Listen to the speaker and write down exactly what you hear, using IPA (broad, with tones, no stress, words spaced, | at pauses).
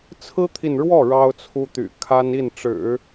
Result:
t͡sʰɹ̩˥t̪ʰi˨nɻwɔ˥˩ ɻɑ˥ʊ̯t͡sʰu˥t̪y̰˨˩ kʰa˥ni˥˩nʈ͡ʂɻ̩˨˩˦